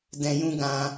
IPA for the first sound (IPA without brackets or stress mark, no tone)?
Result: d